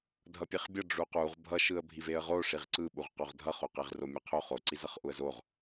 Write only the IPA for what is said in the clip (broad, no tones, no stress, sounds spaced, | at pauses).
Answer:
dʱ ʌ pʲ e χ bʲ ʌ ɖ͡ʐ u q u ʁ bʱ ʌ ʃ ɯ ə̯ bʱ i v e ə̯ ʁ o ʂ i ʁ ǀ ɯ ɓ u ʁ q o ʁ dʱ ʌ χ o q e ʁ r o mʲ e qʰ o χ o ǀ i z ʌ χ ʔ u ə̯ z o ʁ